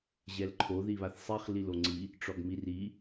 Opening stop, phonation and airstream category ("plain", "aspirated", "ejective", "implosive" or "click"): click